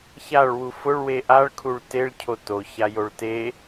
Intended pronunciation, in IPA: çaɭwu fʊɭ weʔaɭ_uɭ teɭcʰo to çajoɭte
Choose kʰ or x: kʰ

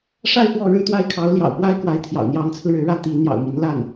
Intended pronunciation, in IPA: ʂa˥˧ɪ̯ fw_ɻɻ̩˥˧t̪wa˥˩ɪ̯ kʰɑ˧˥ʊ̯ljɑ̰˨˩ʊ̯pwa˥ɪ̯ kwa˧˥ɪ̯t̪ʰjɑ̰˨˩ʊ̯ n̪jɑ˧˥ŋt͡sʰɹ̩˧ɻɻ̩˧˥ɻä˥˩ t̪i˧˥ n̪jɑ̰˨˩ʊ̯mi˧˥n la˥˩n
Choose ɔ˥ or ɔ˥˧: ɔ˥˧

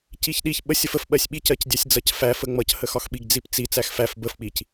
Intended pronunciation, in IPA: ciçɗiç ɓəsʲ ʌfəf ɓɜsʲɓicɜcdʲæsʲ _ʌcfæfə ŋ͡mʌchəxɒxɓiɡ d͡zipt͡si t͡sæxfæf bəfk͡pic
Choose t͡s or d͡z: d͡z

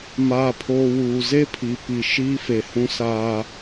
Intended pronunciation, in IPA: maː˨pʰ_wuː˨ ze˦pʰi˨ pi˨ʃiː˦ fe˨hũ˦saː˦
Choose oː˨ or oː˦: oː˨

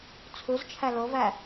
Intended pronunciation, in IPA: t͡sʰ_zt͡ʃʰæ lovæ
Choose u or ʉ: u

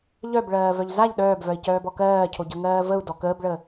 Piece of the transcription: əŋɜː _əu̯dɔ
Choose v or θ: v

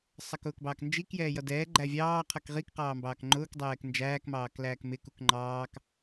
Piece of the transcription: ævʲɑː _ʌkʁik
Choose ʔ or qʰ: qʰ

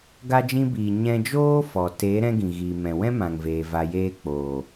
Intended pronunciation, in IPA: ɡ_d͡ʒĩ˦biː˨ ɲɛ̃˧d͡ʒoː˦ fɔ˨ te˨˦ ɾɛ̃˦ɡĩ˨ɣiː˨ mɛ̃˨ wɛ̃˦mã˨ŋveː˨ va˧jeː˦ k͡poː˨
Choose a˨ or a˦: a˦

